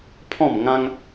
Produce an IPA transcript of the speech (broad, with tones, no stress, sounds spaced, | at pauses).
pʰ ɔ̃˥˧ m ŋ ã˦ ŋ